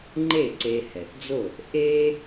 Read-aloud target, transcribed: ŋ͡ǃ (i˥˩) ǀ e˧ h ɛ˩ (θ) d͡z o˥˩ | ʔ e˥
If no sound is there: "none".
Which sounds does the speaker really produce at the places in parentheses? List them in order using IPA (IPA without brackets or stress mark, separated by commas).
e˥˩, θ